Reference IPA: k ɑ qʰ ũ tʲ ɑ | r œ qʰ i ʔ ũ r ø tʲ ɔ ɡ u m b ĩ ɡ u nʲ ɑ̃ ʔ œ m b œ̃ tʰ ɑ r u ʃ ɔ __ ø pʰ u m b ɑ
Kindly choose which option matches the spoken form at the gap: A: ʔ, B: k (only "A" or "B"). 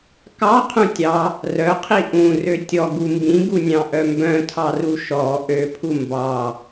A